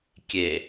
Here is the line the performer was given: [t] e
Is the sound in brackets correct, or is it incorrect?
incorrect